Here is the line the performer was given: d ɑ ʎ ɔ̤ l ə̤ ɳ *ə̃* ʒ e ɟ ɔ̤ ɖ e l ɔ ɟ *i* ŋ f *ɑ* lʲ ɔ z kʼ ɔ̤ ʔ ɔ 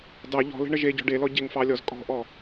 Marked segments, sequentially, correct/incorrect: incorrect: ə, incorrect: e, correct

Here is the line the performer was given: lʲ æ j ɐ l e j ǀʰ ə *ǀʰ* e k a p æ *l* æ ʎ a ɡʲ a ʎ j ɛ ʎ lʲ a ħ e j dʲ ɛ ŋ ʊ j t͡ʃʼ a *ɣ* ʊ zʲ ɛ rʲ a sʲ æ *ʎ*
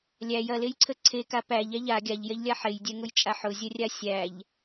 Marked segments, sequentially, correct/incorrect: correct, incorrect: ʎ, incorrect: ħ, correct

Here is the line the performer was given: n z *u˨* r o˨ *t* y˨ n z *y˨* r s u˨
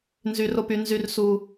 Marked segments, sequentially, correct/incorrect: incorrect: y˨, incorrect: p, correct

